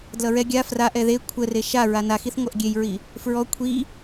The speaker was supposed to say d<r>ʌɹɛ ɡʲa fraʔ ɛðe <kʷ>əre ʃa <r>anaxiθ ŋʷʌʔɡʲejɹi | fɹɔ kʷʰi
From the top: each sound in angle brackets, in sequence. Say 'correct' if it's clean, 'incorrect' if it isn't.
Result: incorrect: l, incorrect: kʷʰ, incorrect: ɹ

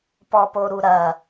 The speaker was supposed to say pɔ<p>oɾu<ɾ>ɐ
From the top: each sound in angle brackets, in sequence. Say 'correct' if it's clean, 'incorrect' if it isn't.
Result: correct, correct

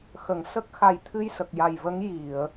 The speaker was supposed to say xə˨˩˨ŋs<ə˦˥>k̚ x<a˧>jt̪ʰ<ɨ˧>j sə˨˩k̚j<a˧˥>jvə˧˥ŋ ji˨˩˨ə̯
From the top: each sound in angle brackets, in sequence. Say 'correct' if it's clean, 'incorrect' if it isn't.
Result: correct, incorrect: a˨˩, correct, incorrect: a˨˩

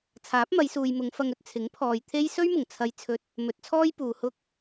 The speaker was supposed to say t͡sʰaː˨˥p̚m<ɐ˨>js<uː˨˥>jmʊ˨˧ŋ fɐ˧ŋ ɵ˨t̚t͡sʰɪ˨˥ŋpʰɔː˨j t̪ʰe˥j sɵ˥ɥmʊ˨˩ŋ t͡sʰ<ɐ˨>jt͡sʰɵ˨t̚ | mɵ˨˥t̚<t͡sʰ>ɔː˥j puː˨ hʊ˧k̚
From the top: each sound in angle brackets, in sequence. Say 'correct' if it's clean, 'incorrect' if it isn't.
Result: incorrect: ɐ˨˧, incorrect: uː˨, correct, correct

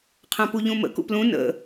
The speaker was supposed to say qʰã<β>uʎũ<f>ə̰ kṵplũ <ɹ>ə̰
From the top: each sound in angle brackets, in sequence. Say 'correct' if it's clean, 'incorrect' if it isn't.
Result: incorrect: p, incorrect: m, incorrect: n

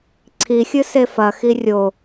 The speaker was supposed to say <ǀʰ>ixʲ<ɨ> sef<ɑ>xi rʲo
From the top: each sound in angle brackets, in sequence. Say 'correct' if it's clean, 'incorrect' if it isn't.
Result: correct, correct, incorrect: ɐ

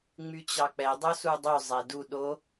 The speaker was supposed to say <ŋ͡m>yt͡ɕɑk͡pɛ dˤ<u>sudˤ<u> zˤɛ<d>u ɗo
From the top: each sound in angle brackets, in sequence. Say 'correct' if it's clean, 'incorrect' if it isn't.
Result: correct, incorrect: o, incorrect: y, correct

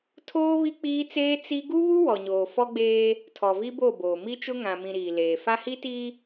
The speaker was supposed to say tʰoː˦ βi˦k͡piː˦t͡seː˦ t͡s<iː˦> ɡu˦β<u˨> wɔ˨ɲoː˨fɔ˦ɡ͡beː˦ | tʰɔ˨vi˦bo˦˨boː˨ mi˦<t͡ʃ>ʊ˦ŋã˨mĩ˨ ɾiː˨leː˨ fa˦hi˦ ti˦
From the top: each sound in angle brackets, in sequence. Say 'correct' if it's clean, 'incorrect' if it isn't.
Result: incorrect: i˦, incorrect: u˦, correct

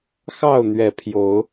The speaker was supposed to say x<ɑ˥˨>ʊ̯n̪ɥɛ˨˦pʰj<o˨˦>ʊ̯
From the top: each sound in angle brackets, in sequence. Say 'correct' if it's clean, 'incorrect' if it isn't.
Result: correct, correct

